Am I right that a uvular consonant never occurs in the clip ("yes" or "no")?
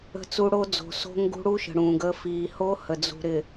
yes